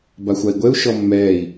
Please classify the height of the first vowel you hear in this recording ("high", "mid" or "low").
low